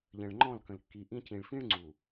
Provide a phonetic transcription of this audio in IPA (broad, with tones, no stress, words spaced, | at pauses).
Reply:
ʎə̃˨ɭ ŋ͡ǃɔ̃˦˨lkə̃˨l kːi˨ʔĩ˦ cĩ˨ɭfĩ˦ɭŋ͡ǀu˨